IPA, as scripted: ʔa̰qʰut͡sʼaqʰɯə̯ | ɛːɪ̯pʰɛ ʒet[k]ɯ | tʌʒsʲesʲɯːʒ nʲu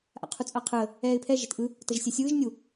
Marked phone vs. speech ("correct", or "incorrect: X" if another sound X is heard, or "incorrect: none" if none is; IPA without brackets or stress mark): incorrect: ʔ